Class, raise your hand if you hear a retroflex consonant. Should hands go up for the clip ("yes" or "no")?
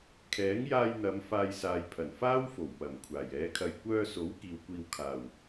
no